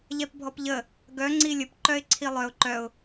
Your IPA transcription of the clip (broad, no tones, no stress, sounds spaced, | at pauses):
ʎ ɛ p bʱ ɔ p ʎ ə | ɡ œ ŋ͡ǀ i lʲ ə p ǃ œ ɪ̯ ǀʰ i lˠ œ ʊ̯ ǃ œ ʊ̯